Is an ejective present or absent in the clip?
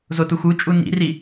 present